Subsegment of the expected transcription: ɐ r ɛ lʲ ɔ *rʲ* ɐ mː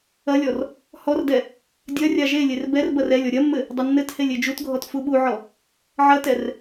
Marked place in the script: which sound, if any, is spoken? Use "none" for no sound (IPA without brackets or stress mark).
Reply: ɾʲ